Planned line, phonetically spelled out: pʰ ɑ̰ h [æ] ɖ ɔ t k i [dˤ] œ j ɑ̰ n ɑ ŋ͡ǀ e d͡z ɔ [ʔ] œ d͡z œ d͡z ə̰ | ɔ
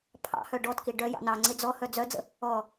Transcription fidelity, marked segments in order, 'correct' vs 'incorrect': incorrect: œ, incorrect: ɖ, incorrect: h

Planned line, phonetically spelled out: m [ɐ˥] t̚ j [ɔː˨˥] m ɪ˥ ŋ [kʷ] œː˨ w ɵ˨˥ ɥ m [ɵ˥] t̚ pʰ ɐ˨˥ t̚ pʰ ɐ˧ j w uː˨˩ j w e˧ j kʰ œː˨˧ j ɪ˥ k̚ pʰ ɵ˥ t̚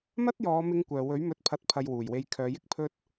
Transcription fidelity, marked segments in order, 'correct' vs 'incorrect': correct, incorrect: ɔː˨˧, correct, incorrect: ɵ˨˥

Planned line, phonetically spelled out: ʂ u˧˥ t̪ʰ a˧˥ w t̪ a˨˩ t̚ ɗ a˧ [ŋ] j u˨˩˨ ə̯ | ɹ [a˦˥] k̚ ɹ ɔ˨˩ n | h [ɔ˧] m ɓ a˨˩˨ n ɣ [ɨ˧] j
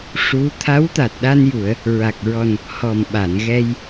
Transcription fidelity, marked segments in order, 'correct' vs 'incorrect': incorrect: n, incorrect: a˨˩, incorrect: ɔ˨˩, incorrect: ɛ˧

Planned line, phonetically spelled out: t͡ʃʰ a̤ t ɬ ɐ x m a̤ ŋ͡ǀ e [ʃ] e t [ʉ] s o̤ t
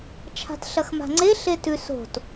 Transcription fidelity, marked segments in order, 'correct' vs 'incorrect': incorrect: ɬ, correct

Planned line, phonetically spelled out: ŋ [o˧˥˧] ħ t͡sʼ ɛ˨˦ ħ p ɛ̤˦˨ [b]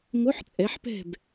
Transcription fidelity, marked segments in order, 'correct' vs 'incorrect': correct, correct

